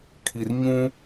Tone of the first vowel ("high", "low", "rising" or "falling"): low